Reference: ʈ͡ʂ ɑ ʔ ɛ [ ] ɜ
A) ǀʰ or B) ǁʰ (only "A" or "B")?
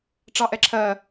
B